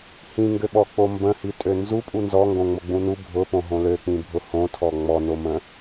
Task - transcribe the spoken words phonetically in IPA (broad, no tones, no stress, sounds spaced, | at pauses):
h ĩ ŋ ɡ ø ɓ ɔ k͡p o m b ə̃ h i tʼ ø n z u pʼ u n z ɔ ŋ ɡ õ ŋ͡m o ɡ͡b ũ n u bʱ ʊ p õ ɦ õ l ø k͡p ĩ bʱ ʊ h õ tʰ ɔ ŋ͡m ɔ n o m ə̃